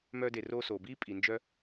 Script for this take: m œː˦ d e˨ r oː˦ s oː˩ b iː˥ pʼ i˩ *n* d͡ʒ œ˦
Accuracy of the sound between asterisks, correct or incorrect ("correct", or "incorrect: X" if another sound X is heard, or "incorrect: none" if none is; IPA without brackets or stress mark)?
correct